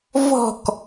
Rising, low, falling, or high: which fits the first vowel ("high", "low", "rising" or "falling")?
falling